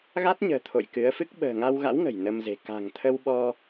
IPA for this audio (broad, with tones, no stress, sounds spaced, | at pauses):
ɣ a˦˥ t̚ ɲ ə̤ː˨˩ t̪ʰ o̰˧˨ j k ɨ˨˦ ə̯ f ɨ˦˥ k̚ ɓ ə̤ː˨˩ ŋ a˧ w ɣ a̰˧˥ w ŋ ə̤˨˩ j n ə˧ m z e̤˨˩ k a̤˨˩ ŋ t̪ʰ ə˧ w ɓ ɔ˧